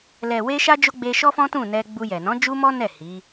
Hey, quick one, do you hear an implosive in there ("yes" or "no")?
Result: no